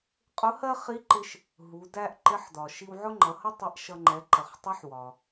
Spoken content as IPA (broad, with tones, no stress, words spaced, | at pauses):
qʼʊ˧˥hɜ˥ χi˧˥ǃɪ˧ʃ | ɦu˩˧dæ˥ʔ ǃɪ˧˥ħdɒ˩ ʃi˧wʕʊ˥ŋ͡ǃʌ˩˧hʌ˥ tˤɛ˧˥ʔʃʌ˧ŋ͡ǃɛ˩˧ ǃə˩χtˤʌ˧˥ħwɒ˩